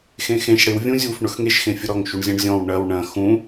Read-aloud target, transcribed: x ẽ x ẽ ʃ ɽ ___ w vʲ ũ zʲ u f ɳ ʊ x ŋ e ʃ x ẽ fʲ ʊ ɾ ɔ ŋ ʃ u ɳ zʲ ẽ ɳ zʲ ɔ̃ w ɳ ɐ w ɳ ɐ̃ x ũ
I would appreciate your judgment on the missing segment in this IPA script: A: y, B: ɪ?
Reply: B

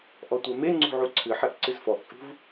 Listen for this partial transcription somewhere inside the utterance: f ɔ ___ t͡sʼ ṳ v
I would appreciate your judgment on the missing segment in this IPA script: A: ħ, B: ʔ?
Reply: B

